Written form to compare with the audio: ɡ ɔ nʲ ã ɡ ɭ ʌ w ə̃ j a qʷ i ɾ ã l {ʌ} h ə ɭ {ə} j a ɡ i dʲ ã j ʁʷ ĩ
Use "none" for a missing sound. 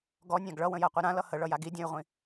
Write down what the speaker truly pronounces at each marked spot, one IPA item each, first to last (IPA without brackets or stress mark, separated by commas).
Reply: ʌ, ʌ